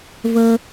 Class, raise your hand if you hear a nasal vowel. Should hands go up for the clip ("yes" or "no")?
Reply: no